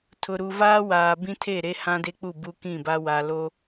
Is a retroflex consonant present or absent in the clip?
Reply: absent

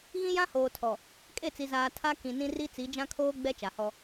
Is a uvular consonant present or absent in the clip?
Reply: absent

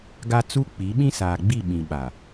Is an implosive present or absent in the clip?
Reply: present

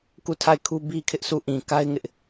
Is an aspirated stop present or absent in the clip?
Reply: present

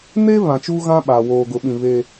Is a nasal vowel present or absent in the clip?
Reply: present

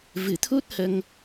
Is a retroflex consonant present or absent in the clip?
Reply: absent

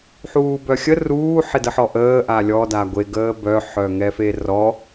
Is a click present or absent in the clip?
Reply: absent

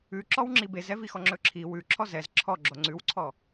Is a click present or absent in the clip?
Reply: present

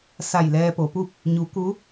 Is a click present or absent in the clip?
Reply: absent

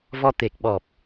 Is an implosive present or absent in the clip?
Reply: present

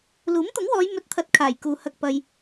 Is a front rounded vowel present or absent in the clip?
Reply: absent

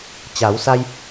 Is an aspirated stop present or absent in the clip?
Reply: absent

